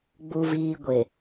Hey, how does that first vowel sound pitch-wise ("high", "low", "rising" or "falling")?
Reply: low